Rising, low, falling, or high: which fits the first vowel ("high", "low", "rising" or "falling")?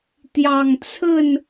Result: low